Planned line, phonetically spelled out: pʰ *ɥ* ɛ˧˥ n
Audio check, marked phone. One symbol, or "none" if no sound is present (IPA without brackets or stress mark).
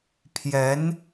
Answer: j